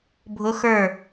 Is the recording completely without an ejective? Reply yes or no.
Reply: yes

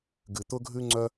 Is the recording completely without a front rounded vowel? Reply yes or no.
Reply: no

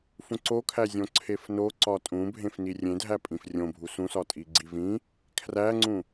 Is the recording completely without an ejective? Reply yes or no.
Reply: no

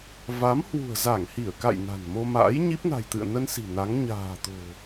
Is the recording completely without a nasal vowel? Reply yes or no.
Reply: yes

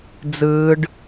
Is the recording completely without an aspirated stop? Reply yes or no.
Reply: yes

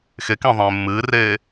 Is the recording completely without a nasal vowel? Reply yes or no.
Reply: no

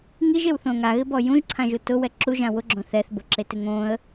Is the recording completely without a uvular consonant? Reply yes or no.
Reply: yes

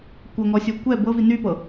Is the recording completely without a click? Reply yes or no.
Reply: yes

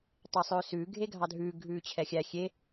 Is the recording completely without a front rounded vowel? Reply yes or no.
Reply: yes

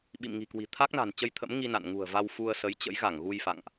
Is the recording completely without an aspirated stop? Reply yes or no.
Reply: no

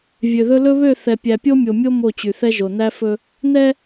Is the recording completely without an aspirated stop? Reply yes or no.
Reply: yes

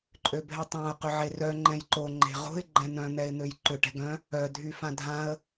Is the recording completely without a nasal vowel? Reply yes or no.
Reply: no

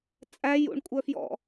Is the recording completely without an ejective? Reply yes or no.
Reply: no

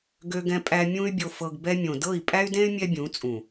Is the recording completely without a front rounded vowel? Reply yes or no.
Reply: no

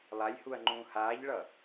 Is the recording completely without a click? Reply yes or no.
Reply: no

